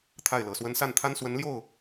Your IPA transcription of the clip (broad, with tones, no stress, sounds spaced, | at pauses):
t̪ʰ a˥˩ ɪ̯ l ɤ˨˩ s w ə˥ n s a˥˩ n t̪ʰ a˥ n s w ə˧˥ n l j o˥˩ ʊ̯